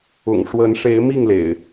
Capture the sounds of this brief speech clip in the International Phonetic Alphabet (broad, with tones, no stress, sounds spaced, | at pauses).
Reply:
ʊ̰˨˩ ŋ ʂ w ə˨˦ n ʂ e˨˦ ɪ̯ m i˥˨ ŋ l ḛ˨˩ ɪ̯